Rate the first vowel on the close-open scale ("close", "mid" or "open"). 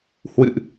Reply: close